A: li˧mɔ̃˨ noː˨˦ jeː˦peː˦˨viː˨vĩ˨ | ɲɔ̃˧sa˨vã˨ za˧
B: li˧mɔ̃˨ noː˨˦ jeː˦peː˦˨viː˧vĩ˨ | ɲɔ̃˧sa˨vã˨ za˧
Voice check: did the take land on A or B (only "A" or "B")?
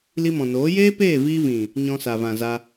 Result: B